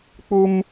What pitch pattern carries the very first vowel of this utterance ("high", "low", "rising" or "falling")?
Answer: high